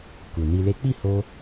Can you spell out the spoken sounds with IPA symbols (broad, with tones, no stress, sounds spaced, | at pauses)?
k u˨ n i˧ l e˦ k͡p i˦˨ h o˧